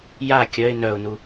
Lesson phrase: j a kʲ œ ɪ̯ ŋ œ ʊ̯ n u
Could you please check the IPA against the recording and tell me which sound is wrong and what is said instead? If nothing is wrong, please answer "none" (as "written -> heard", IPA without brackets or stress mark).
ŋ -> n